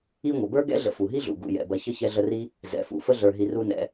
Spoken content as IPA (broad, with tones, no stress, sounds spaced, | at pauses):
i˦ ŋʷ ə˩ b ə˞˥ ɡ ɛ̰˥ ɮ ə̰˨ f u˩ ɦ i˥ ɮ ṵ˩ ɡ ṵ˩ j ɛ̰˩ b ɐ˨ ç ə˥ ç ɛ˦ ɮ ə˦ r i˥ | z ɛ̰˩ f ṵ˨ f ə˥ ɮ ə˞˨ ɦ i˨ r u˦ n ɛ̰˨